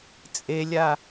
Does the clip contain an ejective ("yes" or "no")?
yes